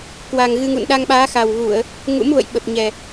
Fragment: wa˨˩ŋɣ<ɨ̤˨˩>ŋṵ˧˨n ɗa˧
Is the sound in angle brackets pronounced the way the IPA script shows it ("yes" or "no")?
no